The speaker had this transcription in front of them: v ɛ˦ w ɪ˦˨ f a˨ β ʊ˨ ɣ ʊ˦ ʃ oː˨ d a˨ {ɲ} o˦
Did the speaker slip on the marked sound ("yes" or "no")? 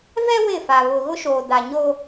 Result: no